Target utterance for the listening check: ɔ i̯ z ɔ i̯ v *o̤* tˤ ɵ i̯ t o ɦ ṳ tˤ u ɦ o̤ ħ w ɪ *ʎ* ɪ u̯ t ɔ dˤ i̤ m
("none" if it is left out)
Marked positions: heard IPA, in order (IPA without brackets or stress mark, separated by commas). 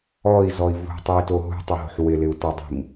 o̤, l